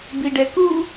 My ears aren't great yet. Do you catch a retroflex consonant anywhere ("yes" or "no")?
yes